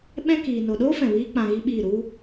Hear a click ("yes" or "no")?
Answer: no